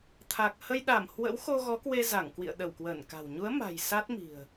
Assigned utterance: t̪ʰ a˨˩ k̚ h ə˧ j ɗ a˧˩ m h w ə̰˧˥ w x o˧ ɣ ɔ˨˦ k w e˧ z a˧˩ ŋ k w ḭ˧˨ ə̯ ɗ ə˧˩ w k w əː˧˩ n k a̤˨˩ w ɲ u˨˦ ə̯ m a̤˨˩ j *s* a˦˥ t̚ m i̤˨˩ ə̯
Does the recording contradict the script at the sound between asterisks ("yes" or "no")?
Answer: no